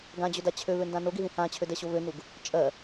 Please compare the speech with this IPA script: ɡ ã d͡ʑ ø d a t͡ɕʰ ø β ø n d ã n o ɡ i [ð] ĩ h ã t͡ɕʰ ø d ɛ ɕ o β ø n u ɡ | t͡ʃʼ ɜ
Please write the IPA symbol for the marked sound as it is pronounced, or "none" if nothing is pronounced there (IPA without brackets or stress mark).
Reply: ð